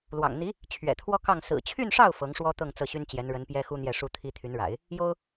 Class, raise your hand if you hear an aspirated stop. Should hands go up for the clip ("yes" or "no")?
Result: yes